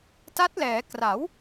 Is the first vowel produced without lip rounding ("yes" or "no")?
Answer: yes